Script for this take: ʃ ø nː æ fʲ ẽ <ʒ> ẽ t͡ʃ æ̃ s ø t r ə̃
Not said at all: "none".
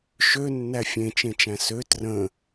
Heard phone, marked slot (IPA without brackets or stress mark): t͡ʃ